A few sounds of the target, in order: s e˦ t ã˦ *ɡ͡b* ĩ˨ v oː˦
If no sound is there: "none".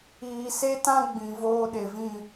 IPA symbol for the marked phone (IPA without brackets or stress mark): ɡ͡b